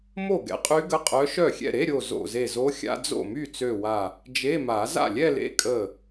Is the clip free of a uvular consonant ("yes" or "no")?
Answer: no